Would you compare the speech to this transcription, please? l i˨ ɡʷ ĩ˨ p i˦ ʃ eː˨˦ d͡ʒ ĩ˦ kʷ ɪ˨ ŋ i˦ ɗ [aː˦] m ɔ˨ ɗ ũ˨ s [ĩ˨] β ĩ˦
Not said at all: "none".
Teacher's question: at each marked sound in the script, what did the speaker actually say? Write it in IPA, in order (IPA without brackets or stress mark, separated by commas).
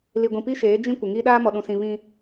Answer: aː˦, ĩ˨